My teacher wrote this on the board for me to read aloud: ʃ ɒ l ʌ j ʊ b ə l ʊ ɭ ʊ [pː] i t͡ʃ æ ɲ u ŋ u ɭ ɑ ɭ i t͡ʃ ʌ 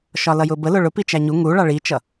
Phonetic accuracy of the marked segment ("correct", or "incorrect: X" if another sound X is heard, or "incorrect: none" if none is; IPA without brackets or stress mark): incorrect: p